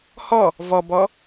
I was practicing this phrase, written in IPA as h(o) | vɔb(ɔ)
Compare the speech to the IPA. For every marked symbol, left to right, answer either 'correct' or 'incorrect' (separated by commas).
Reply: incorrect, correct